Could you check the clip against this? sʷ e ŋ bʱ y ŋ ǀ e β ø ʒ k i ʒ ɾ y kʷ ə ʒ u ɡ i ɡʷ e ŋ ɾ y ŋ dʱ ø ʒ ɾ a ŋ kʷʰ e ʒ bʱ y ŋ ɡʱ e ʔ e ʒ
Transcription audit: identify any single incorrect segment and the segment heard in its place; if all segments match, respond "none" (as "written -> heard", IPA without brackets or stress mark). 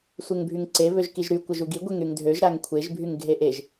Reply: none